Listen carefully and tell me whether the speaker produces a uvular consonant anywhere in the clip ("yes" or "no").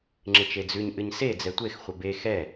yes